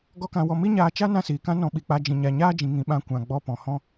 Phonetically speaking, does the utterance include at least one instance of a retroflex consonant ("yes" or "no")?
no